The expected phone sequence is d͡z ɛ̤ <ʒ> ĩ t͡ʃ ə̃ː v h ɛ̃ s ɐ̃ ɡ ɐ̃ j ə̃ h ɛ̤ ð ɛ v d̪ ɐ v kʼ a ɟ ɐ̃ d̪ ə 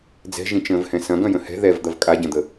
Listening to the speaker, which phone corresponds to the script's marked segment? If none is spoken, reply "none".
ʒ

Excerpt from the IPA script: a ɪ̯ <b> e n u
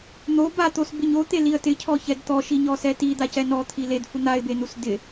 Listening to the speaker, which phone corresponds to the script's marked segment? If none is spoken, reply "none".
b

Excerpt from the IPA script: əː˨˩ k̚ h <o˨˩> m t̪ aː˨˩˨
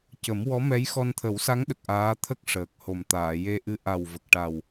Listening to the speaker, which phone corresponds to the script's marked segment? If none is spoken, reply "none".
o˨˩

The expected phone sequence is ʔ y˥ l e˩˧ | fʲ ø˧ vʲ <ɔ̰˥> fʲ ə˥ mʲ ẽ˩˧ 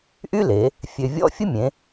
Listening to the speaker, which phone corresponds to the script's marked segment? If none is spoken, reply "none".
ɔ̰˥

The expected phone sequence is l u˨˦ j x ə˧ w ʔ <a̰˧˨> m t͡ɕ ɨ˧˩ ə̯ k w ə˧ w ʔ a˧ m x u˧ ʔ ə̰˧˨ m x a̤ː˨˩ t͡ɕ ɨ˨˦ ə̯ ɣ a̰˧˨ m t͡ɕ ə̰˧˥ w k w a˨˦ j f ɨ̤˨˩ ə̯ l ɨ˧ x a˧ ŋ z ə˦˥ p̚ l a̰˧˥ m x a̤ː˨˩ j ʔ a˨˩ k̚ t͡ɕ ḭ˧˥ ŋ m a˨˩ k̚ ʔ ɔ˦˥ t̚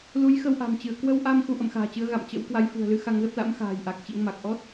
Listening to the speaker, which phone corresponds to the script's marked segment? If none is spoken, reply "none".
a̤˨˩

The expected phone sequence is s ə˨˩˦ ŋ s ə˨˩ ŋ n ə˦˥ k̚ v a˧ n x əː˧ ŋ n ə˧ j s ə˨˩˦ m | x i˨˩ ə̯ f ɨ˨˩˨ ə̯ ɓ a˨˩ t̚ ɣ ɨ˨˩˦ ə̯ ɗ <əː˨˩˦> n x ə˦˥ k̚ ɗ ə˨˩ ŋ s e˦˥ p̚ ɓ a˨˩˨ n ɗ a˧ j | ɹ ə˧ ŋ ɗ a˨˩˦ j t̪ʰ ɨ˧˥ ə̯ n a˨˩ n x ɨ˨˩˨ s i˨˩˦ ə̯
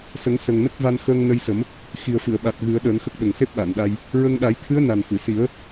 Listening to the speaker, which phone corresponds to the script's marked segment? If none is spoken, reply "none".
əː˨˩˦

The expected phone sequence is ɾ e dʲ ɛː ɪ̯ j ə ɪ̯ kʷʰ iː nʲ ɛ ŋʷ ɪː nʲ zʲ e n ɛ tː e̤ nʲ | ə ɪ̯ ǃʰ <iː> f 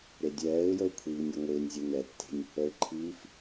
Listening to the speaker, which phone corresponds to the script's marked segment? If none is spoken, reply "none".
iː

